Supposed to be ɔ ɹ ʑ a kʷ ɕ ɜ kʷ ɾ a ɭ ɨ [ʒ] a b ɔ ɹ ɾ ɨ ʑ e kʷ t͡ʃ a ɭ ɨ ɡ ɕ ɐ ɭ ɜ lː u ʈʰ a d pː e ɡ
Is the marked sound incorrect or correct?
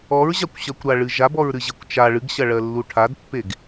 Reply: correct